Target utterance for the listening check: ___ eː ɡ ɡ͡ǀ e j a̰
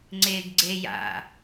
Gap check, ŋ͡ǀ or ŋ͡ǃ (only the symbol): ŋ͡ǀ